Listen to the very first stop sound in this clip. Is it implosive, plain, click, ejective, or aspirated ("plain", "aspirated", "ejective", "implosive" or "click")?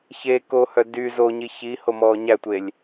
plain